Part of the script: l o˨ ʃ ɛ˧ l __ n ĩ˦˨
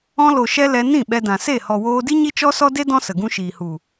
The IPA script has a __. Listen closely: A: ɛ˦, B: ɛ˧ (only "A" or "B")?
B